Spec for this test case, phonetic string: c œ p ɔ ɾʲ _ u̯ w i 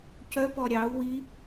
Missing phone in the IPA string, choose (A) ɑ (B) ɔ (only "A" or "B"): A